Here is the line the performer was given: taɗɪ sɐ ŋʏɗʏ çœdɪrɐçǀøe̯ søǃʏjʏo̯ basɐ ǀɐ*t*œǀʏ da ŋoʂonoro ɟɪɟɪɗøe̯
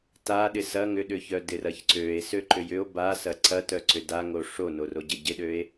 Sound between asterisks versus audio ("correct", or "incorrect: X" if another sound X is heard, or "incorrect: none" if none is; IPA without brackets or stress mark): correct